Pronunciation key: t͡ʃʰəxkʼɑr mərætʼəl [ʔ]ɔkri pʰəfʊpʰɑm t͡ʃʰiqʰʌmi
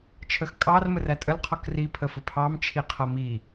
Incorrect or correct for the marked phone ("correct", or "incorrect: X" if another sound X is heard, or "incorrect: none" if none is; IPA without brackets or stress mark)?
incorrect: qʰ